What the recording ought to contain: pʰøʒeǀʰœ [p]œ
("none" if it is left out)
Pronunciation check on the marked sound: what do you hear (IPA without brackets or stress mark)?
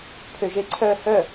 h